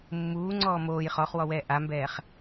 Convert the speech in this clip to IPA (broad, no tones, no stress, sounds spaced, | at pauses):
mː uː ŋ͡ǀ ɔː m oː j χ ɔ χ w ɔ w ɛː ʔ a m b ɛː χ